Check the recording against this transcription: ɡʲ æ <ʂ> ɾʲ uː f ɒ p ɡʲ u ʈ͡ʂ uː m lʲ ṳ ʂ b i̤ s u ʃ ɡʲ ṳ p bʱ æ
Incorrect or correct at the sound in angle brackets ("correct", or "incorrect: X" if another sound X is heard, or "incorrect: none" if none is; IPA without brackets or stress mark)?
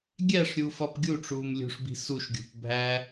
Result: correct